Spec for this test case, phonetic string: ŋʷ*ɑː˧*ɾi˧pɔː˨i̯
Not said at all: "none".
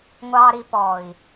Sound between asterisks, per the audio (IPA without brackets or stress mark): ɑː˧